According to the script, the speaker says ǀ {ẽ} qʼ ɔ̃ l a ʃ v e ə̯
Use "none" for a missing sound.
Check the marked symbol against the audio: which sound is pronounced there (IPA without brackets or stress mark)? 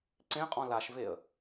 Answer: ẽ